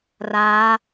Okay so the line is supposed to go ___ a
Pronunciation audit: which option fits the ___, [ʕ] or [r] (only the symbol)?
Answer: r